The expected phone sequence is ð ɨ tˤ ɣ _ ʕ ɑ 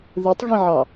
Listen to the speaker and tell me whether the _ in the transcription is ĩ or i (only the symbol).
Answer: ĩ